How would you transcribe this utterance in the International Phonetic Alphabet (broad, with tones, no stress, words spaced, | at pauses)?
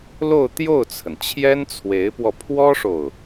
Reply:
lo˥˧ʊ̯t̪jo˥˩ʊ̯t͡sʰə˩nt͡ɕʰjɛ˥n t͡sʰwe˧˥ɪ̯pwɔ˧ pʰwɔ˥ʂo˨ʊ̯